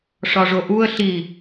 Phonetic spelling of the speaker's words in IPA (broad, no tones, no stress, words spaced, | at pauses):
ʂɒʐoʔuə̯ ɬi